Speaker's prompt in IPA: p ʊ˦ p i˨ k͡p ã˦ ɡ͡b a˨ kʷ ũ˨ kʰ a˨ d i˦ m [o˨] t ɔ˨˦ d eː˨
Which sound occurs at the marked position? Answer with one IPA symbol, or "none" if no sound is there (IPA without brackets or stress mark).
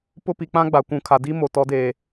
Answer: o˨